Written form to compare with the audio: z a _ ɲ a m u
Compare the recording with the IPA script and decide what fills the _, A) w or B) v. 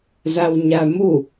A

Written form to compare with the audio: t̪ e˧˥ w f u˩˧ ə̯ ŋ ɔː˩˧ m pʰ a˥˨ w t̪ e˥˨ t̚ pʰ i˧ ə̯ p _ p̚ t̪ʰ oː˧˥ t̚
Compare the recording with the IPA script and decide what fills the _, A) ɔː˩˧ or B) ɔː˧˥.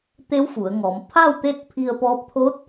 B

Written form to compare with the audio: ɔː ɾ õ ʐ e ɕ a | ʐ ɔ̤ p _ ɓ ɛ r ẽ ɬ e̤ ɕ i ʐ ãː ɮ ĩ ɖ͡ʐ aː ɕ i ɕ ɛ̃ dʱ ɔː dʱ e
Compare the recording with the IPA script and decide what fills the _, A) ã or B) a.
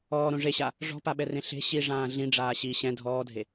B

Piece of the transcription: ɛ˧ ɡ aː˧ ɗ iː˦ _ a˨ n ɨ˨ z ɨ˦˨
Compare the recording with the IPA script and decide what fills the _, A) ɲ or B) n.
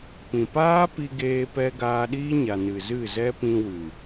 A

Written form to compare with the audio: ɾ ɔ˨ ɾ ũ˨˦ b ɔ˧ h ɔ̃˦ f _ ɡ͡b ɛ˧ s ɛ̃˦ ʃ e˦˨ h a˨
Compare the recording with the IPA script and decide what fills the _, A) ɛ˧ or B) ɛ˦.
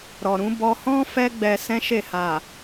B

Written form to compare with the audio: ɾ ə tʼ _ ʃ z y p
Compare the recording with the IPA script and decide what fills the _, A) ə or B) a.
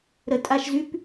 B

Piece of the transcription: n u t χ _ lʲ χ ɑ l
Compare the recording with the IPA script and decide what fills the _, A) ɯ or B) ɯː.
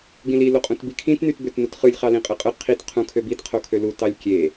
A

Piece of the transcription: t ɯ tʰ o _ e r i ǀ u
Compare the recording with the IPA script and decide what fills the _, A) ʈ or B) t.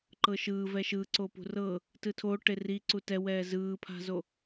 A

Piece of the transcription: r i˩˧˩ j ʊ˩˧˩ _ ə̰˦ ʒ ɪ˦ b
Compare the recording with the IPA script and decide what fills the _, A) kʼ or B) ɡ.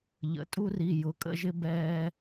A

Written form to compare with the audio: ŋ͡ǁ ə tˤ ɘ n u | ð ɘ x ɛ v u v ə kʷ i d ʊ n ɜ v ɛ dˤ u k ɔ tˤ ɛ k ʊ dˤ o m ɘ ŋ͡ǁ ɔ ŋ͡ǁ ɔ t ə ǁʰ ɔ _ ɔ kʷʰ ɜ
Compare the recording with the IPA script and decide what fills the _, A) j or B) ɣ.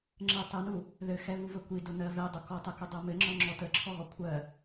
B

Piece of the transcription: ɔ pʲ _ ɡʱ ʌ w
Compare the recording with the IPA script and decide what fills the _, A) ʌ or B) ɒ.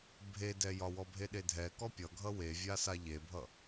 A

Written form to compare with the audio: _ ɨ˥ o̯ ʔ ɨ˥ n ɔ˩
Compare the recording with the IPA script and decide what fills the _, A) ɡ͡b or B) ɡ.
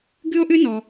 B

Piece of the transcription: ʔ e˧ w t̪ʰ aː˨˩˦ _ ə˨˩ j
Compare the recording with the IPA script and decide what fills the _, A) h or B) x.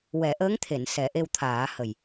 A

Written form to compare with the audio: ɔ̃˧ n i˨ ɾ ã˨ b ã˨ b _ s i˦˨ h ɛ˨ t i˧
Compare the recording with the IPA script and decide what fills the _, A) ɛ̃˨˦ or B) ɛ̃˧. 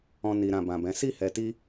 A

